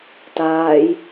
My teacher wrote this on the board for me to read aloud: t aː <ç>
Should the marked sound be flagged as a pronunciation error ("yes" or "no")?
yes